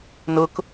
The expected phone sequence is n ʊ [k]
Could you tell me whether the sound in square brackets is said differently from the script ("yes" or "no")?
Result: no